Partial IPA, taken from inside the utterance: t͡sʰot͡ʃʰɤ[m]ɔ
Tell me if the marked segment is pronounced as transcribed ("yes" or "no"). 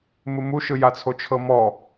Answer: yes